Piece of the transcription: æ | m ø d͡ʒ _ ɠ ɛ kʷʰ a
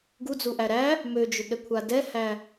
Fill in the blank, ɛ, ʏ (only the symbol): ʏ